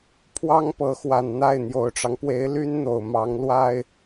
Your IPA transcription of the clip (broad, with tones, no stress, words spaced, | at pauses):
pʰwɑ˥ŋpɤ˧˥xwa˨˩n n̪a˥˩ɪ̯ n̪jo˨˩ʊ̯ʈ͡ʂɑ˦ŋpwe˧˥ɪ̯ ly˥nn̪o˨˩ʊ̯ mɑ˧˥ŋlwa˥ɪ̯